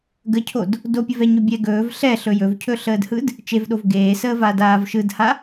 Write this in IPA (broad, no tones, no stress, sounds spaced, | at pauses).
ɡ ə cʰ o d | d o pʲ ə v ɛ ɲ ɵ bʲ ɛ ɡ ɵː v ɬ ɛ ɬ ɵ j ɵ v cʰ ɵ ɬ əː d h ɯ d | t͡ʃ e v ɗ o v ɡ eː s əː v a d aː v ʃ ɯ d h a